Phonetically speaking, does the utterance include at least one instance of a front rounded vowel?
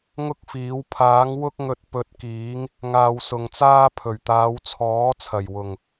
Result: no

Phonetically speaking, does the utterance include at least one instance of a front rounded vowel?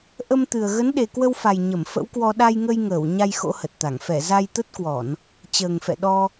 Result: no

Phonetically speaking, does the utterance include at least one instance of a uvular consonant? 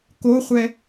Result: yes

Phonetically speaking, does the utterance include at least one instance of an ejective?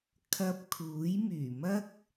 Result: no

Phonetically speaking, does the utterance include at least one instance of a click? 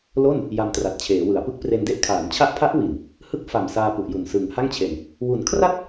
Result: no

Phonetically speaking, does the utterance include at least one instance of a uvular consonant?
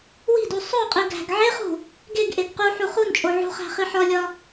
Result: yes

